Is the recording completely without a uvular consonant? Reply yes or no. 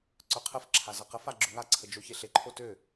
no